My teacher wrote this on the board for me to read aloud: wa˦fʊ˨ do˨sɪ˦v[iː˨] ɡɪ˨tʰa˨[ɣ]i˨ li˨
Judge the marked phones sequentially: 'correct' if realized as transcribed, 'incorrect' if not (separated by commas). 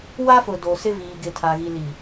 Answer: correct, correct